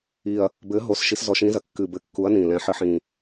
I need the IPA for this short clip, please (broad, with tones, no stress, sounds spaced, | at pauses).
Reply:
i˨˩ ɐ̯ | b ɘ˨˦ ɦ o˨˦ s ʃ i˨˦ s z ɔ˨˦ ʃ ĩ˨˦ z ɐ˨˩ kː ɨ˨˩ b ɘ˨˦ kː u˨˦ ɐ̯ n ĩ˨˩ l ɛ̃˨˦ ħ ɘ˨˦ ħ ĩ˨˩